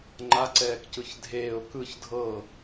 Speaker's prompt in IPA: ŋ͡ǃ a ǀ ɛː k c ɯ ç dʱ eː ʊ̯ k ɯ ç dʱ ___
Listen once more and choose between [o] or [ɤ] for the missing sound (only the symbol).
ɤ